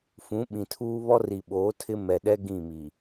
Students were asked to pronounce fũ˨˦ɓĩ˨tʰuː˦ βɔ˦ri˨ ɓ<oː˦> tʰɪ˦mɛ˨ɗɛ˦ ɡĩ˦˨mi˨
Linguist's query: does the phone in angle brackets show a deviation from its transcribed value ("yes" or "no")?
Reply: yes